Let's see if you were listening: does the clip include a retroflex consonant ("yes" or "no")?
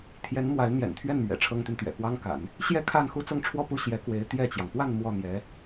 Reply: yes